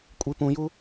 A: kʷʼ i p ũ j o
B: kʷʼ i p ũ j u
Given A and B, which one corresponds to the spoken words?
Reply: B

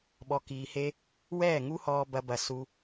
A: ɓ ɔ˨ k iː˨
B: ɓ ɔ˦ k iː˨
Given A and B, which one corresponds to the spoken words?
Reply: A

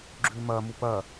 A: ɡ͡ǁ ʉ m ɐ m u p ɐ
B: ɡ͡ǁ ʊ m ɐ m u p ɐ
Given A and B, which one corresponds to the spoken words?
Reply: A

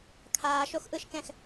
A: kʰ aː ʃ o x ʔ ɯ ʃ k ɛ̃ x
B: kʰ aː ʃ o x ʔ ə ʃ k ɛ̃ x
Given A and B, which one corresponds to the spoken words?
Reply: A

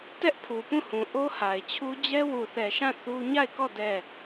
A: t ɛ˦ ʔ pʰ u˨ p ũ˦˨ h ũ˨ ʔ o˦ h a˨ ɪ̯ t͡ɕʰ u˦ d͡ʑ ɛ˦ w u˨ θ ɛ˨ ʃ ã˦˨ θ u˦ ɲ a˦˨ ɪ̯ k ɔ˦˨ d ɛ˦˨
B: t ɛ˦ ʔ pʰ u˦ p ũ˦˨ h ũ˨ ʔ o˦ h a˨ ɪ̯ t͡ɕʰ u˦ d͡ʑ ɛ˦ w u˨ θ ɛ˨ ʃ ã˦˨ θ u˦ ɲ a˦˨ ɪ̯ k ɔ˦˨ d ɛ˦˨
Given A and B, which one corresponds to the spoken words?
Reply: A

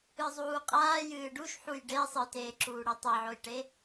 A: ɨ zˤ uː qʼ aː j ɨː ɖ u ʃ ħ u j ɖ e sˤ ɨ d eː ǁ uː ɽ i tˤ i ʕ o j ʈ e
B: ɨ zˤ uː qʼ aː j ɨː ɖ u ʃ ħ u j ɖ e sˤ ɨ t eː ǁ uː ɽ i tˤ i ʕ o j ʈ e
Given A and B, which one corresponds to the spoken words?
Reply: B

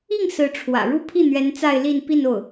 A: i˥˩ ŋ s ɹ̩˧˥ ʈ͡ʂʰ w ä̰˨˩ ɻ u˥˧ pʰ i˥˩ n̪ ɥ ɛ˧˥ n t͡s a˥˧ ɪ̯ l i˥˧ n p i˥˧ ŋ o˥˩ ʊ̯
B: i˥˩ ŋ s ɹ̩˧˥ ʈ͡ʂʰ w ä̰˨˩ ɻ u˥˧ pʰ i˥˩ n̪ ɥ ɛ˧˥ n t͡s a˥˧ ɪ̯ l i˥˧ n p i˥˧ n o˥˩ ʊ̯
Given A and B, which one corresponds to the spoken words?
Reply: B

